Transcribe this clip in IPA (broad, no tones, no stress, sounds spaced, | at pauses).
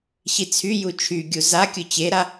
ɕ i t͡sʰ y j u t͡ʃʰ y ɡʲ u z a kʲ ʊ t͡ɕ e ɾ a